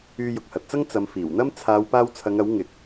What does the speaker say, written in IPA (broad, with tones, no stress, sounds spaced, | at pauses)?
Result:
yː˧ j ʊ˨ k̚ h ɐ˨ t̚ t͡s ɐ˥ ŋ t͡s ɐ˨˧ m f iː˨˩ w n̪ ɐ˥ m t͡sʰ aː˨˧ w p aː˧ w t͡sʰ ɐ˨˧ ŋ ɐ˨˥ w ŋ ɪ˨ k̚